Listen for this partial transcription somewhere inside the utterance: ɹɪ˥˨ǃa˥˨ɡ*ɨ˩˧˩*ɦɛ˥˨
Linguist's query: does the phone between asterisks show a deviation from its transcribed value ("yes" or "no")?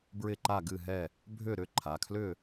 yes